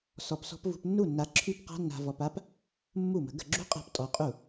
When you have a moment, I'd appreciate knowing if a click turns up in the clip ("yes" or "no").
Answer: yes